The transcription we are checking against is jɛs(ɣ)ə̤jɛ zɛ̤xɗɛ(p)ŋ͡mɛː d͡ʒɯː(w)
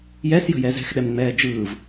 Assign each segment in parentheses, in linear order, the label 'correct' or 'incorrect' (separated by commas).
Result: incorrect, incorrect, incorrect